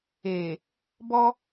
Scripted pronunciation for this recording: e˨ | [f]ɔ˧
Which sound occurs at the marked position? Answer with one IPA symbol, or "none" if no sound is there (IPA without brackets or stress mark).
b